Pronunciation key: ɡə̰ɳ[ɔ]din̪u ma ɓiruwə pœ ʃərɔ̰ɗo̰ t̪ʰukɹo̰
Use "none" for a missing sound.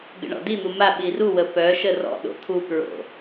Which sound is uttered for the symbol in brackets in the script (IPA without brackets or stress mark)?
ɔ̰